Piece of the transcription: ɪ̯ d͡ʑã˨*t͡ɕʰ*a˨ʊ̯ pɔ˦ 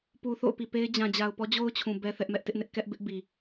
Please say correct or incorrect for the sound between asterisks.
incorrect